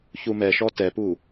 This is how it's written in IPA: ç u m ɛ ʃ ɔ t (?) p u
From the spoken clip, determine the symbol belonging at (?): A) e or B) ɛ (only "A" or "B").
B